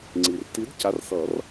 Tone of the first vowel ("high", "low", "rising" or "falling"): low